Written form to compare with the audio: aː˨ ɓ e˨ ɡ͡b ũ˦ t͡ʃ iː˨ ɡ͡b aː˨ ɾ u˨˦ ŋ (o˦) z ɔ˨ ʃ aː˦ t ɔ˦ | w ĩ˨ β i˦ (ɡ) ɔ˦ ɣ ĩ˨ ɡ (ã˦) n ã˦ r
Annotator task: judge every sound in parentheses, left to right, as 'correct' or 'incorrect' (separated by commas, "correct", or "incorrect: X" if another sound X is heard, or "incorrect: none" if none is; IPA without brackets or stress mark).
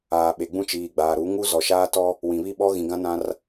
incorrect: u˦, incorrect: ɓ, correct